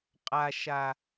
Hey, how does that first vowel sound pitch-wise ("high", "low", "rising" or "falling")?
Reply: low